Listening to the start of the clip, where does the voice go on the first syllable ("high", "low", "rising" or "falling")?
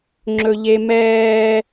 high